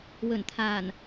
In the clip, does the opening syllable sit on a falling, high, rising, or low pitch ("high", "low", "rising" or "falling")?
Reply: low